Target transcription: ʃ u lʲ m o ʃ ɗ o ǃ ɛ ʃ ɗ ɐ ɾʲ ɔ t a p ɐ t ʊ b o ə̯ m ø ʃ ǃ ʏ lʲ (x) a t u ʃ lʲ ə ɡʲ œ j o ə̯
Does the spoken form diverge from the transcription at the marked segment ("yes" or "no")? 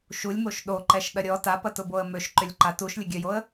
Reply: yes